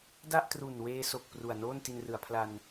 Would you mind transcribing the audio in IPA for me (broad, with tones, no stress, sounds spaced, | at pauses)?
d a˥˩ ʔ t r u˨˩ n w eː˧ s o˨˩ k̚ p r u˨˩ a̯ n oː˥˩ n t i˧ n r ɯ˩˦ a̯ pʰ l a˧ n